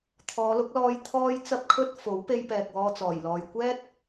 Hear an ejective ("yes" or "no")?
no